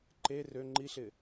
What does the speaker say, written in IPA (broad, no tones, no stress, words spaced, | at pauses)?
ǃe rø ŋ͡ǃiɬɪ